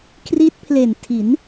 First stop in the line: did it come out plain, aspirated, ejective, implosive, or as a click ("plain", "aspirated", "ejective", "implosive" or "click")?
aspirated